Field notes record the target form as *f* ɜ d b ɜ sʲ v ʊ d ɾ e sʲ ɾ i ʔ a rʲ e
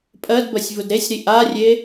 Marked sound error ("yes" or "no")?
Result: yes